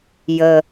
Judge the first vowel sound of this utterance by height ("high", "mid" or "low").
mid